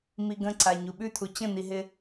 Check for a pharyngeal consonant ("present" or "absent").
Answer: absent